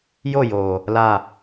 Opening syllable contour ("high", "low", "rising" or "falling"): falling